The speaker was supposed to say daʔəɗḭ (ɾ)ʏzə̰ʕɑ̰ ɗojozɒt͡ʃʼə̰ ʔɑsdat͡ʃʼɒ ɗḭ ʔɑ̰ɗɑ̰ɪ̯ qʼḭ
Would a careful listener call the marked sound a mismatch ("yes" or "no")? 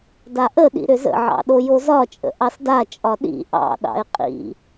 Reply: no